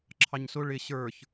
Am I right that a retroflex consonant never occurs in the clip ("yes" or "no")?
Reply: no